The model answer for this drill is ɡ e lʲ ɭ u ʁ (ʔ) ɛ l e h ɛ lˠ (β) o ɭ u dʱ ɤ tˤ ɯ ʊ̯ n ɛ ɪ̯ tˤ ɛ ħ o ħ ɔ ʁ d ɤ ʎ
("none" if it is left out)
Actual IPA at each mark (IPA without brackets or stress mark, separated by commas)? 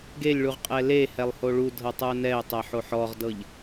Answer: qʼ, h